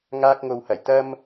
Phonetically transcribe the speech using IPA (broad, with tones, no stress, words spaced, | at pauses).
ŋaː˧k̚ŋo˨whɐ˨˩j t̪ɐ˥m